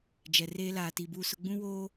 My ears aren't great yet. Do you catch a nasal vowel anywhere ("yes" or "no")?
yes